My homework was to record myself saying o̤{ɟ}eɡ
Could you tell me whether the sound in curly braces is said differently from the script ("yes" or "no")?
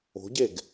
no